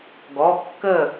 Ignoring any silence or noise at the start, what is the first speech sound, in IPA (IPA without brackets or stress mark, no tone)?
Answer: ɡ